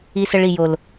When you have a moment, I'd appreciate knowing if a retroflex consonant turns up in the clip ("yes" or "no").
yes